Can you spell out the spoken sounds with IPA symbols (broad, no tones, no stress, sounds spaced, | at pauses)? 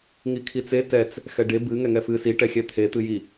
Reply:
ŋ i kʰ i t͡s e t ɛ t͡s | x ɛ ɖ e b ɨ ŋ ɛ ŋ ɛ f ɨ s i ʈ ɛ xʲ ɛ t̪ʰ e t̪ ɨ j i